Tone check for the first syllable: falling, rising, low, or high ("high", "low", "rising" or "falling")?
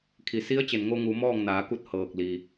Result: low